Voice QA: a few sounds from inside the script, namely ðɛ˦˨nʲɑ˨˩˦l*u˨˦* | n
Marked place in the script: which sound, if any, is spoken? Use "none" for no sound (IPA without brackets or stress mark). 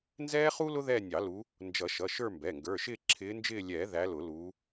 u˨˦